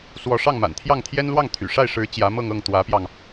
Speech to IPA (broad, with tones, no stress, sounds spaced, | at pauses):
s w ɔ˧˥ ʂ ɑ˥˩ ŋ m a̰˨˩ n t̪ʰ j ɑ˥˩ ŋ t̪ʰ j ɛ˥ n l w ɑ˥˩ ŋ t̪ʰ y̰˨˩ ʂ a˥˩ ɪ̯ ʂ ɻ̩˧˥ t͡ɕ j ä˧˥ m ɤ˥˧ ŋ ɤ˥˩ ŋ t̪ w ä˧˥ p j ɑ˧ ŋ